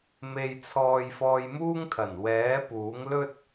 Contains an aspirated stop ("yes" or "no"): yes